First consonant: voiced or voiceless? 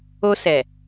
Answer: voiceless